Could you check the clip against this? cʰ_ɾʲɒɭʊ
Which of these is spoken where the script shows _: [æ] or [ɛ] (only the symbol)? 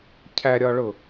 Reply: æ